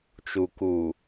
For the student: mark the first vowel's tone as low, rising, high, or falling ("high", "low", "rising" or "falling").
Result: low